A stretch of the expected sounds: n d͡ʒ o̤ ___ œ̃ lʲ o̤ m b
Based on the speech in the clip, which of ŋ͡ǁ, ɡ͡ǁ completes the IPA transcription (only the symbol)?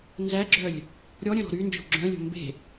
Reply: ɡ͡ǁ